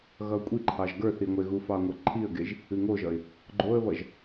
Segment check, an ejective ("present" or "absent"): present